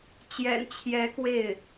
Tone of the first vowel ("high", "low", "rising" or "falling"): low